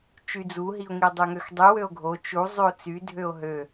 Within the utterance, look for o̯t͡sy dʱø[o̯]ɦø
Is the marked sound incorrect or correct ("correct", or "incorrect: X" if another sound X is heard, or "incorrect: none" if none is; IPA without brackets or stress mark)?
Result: correct